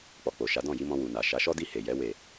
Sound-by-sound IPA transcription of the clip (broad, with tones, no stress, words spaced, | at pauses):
k͡pɔ˨k͡po˨ʃa˨˦ dɔ̃˦˨ji˧mɔ̃˧ wu˨na˨ ʃa˨˦ʃɔ˦di˦˨ he˨jɛ˨˦ we˦˨